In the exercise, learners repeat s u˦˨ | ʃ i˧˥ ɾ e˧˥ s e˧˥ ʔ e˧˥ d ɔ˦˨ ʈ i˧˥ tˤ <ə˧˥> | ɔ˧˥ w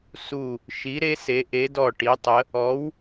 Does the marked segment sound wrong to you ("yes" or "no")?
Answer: no